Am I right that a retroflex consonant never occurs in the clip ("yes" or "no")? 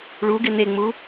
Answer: no